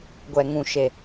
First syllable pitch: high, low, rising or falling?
low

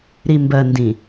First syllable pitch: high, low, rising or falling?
low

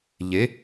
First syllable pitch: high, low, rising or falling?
rising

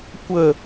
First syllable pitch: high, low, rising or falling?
low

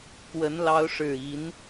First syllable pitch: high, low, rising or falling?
rising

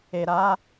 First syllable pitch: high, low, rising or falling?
low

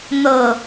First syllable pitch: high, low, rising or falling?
low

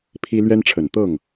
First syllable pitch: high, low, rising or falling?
high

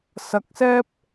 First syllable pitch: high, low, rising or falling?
rising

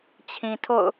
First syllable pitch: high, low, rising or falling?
low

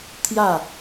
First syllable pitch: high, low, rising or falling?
falling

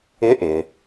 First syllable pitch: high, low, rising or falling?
rising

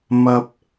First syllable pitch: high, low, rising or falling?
low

